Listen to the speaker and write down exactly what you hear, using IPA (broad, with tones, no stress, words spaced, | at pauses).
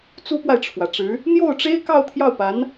t͡su˥pwa˨ɪ̯ʈ͡ʂʰwä˩ʈ͡ʂɻ̩˧˥ | n̪jo˥˩ʊ̯ʈ͡ʂe˥ɪ̯ kɑ˥˧ʊ̯t̪ʰjɑ˥˩ʊ̯pa˧˥n